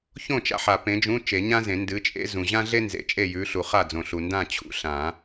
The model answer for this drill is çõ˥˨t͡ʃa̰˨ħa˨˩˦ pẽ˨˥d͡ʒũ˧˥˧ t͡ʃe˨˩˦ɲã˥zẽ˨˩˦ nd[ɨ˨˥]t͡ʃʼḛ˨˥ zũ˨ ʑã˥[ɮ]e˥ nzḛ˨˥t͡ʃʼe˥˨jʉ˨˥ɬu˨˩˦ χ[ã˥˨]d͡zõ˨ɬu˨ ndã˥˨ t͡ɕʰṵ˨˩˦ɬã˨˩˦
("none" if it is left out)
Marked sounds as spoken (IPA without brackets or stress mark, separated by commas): ɨ˨˥, ɮ, a˥˨